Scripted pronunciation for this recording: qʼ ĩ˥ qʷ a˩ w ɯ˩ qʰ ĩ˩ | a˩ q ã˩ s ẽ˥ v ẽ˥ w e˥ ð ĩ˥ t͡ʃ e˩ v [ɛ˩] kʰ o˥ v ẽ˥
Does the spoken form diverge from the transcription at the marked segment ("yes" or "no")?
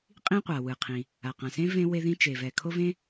no